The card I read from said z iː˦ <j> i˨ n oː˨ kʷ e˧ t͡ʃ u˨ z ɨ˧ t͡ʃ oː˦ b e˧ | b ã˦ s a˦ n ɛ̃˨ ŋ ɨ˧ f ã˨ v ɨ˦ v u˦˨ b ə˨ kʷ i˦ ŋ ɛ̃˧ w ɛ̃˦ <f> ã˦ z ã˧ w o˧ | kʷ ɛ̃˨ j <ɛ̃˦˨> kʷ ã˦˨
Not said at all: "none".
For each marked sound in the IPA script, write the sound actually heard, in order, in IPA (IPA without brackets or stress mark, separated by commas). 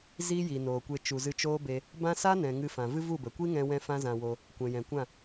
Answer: j, f, ɛ̃˨